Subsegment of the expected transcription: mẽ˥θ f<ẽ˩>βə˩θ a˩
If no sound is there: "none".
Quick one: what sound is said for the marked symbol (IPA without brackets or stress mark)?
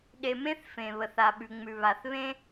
ẽ˩